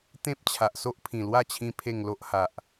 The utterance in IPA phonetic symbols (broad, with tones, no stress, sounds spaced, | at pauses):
t̪ ẽ˦ p̚ t͡ɕʰ a˨ ʔ s o˦ ʔ pʰ ĩ˨˩ l w a˥˧ t͡ɕʰ ĩ˧ pʰ e˥˧ ŋ l o˦ ʔ h a˨ ʔ